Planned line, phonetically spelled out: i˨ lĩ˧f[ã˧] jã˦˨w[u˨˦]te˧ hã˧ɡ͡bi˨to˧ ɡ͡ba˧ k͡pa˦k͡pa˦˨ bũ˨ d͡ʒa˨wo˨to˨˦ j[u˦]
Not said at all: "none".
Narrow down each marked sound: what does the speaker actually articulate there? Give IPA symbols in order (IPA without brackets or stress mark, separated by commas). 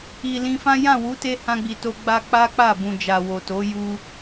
ã˦, u˨˦, u˧